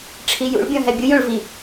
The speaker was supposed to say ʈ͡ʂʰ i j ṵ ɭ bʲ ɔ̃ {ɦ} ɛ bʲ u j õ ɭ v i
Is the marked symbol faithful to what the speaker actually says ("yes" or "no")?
yes